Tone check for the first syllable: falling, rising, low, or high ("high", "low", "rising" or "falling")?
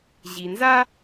low